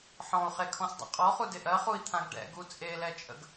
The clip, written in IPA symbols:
ħ ɔ̃ u̯ χ e kʰ ɔ̃ s dˤ a̰ qʼ ɔ χ u d ɪ ʔ ɜ χ u i̯ t̪ʰ ã ɡ ɖ ɛ̰ ɡ u t͡sʼ e l ɛ t͡ʃʼ ə̰ ɡ

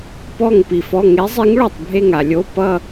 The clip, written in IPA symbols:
p ɔ˧˩ ŋ p i˩ f ɔ˩˧˩ ŋ e˨˥ zˤ i˨˥ ŋ ɭ o˧˩ tˤ bʱ e˧˩ ŋ a˩ lʲ o˩˧˩ p ʌ˧˩

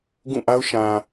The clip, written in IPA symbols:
ɡ ũ˦˨ ʔ a˦ ʊ̯ ʃ ã˨

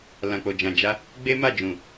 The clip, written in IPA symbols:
l ã˨ k͡p o˨ d͡ʒ ã˨ d͡ʒ a˧ | ɡ͡b e˦ m a˦˨ d͡ʒ ũ˨

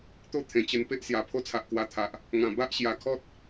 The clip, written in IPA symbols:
t̪ o˥˧ t̪ʰ ẽ˨˩ t͡ɕ ə˧ n p e˦ ʔ s j a˨˩ pʰ o˦ t͡sʰ a˨ ʔ k w a˧ t̪ʰ a˨ ʔ | ŋ ã˨˩ b a˦ ʔ ɕ j a˨˩ kʰ ɔ˦ t̚

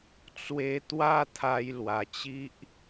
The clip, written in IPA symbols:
t͡s w e˧ t̪ w a˥˧ t̪ʰ a˧ j l w a˨˩ t͡ɕ i˦ ʔ

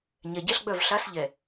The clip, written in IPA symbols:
ɲ ɛ˨ ɟ ɛ˦ ɬ ɡ͡b œ˦˨ v ɬ a˦ s ʎ ɛ˨

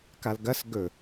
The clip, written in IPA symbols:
k a l ɡ ɐ s ɡ ɵ

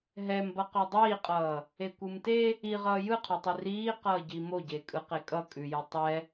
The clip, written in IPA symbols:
ɦ ɛ m b ʌ q ʉ dˤ iː qʼ ʌː | e kʷ ɯ m t e | i ʁ ʌː j ɯ qʰ o tˤ i r iː q ʌː ɟ i m o ɟ e kʼ ɯ q e kʼ ʌ kʼ ʉ j o tˤ ɛ

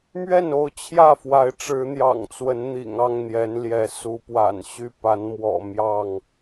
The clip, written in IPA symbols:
m ɥ ɛ˥˨ n o˥˨ ʊ̯ t͡ɕʰ j ä˥˨ f w a˨˦ ɪ̯ ʈ͡ʂ ɻ̩˨˦ n̪ j ɑ̰˨˩ ŋ t͡s w ə˨˦ n n̪ ḭ˨˩ ŋ ɑ˥˨ ŋ n̪ j ɛ˨˦ n l j ɛ˨˦ s u˨˦ p w a̰˨˩ n ɕ y˥˨ p a˨˦ n m w ɔ̰˨˩ m j ɑ˥˨ ŋ

